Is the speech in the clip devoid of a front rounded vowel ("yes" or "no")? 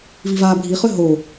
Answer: no